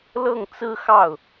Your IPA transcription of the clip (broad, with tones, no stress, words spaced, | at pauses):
lɤ˥˩ŋt͡sɹ̩˥xɑ˥˩ʊ̯